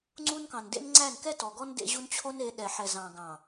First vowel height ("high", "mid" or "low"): high